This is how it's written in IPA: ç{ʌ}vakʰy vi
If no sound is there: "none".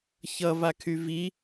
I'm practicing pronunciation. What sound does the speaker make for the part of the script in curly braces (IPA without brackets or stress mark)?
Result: ʌ